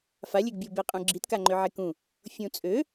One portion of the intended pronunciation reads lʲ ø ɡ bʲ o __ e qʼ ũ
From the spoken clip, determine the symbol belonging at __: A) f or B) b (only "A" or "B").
B